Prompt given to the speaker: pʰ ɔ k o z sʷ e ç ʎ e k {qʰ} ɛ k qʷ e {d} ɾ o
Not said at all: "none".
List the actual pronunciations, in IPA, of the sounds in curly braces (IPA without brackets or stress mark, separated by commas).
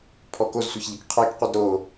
qʰ, d